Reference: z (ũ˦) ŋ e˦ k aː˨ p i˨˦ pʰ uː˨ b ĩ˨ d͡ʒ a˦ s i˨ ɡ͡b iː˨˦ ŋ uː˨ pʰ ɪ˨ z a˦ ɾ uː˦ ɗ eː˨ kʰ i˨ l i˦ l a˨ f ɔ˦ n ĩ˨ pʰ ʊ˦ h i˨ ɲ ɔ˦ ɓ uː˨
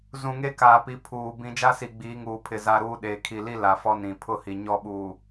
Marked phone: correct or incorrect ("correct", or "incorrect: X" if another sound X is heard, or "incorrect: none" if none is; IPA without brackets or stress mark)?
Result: incorrect: ũ˨